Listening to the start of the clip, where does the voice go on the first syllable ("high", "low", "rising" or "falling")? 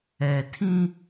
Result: low